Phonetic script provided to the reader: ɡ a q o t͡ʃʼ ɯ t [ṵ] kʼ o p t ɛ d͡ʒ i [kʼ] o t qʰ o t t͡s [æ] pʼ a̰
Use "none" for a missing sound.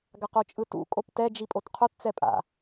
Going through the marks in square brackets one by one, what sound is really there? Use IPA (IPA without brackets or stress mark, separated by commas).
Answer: ṵ, pʼ, ɛ